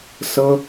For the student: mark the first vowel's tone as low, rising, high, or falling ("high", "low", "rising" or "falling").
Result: high